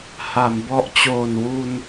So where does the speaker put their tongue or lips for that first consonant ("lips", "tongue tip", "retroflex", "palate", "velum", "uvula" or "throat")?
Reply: throat